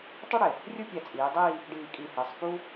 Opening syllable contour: high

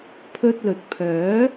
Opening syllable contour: high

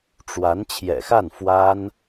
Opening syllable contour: rising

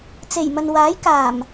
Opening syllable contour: low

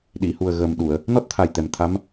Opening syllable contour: low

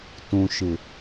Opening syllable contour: low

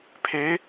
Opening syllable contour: rising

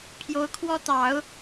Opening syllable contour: rising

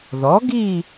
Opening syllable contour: rising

